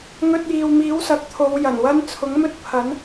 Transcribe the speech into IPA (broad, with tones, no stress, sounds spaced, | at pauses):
ŋ ɵ˧ t̚ j iː˨ w m iː˨˥ w s ɐ˨ k̚ t̪ʰ o˨˧ w j ɐ˨˩ n w ɐ˥ n t͡sʰ ʊ˨˥ ŋ m ɵ˥ t̚ pʰ ɐ˨˥ n